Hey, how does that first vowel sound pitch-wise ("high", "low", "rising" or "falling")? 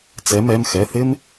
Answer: rising